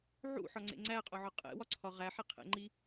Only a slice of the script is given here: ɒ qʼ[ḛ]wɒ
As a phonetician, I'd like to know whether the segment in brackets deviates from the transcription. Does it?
no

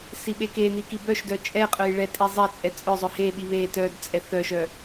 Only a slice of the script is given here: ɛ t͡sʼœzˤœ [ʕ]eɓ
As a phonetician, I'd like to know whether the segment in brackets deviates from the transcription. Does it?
yes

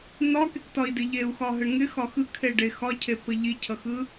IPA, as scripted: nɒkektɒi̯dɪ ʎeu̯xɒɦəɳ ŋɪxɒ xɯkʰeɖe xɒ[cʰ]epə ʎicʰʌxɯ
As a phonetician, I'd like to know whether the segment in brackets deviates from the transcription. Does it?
no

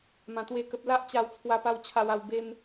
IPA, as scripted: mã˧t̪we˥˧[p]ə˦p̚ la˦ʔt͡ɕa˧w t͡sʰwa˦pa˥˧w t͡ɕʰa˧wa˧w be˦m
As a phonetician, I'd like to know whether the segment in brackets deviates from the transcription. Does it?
yes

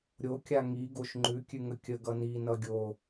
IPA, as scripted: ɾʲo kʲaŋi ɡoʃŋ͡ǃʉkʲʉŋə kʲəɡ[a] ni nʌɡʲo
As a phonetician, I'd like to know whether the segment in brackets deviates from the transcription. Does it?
yes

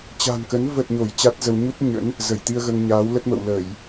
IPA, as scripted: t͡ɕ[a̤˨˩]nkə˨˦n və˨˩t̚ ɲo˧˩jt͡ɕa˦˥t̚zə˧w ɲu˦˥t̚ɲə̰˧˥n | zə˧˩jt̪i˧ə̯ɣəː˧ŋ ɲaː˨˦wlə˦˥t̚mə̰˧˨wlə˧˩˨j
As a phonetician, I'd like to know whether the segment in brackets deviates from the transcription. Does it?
no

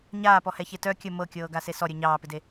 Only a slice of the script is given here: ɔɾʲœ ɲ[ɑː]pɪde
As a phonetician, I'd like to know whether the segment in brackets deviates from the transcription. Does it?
no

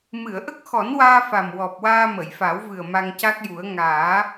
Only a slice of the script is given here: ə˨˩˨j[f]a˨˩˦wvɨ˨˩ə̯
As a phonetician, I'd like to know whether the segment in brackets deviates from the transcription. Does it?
no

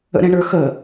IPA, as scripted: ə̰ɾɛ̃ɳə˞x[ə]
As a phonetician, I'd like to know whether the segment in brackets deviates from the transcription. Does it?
no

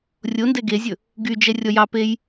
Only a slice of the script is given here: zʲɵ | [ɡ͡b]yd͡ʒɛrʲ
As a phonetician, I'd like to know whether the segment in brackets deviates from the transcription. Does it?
yes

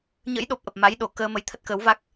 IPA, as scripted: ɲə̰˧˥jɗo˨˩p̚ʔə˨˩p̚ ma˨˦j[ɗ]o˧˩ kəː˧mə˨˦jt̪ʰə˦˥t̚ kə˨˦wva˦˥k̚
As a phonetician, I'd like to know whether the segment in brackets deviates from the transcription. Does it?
no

